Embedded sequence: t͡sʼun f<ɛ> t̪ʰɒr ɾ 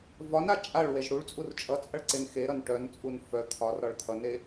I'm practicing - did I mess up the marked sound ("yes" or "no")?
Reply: yes